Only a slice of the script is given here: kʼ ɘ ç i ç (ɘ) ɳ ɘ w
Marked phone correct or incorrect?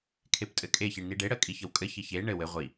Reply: incorrect